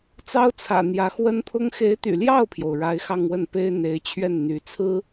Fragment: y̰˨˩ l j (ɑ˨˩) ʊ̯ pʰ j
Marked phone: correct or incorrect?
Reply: incorrect